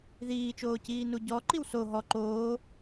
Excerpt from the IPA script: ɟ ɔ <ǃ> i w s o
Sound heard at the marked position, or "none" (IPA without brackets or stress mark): ǃ